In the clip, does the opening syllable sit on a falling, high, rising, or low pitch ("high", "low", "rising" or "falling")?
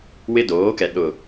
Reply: high